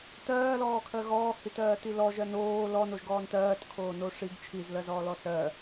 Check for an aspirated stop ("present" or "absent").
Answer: present